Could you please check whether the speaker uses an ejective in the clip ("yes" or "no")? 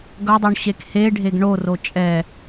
yes